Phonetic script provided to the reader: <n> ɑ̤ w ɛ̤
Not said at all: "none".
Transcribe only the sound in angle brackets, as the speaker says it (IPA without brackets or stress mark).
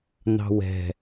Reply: n